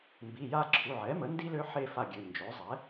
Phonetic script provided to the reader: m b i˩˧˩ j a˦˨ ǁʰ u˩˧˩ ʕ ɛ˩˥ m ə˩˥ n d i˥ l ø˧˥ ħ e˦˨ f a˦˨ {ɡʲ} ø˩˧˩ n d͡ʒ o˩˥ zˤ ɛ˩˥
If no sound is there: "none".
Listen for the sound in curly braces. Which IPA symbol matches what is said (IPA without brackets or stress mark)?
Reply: ɡʲ